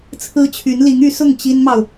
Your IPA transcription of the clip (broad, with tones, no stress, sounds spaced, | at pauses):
t͡sʰ ɹ̩˥ t͡ɕʰ y˧˥ n l i˧˥ ŋ y˧˥ s ʊ˥˩ ŋ t͡ɕ i˥ n m ɑ˨ ʊ̯